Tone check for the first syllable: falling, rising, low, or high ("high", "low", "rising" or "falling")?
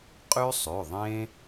high